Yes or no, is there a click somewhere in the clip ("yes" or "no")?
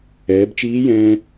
no